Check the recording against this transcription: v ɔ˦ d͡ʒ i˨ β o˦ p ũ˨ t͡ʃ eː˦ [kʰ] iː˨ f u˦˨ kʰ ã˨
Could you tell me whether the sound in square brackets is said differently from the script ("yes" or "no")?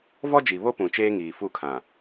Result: yes